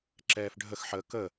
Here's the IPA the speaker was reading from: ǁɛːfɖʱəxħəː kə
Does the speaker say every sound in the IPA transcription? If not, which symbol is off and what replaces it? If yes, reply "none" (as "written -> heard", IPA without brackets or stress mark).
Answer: none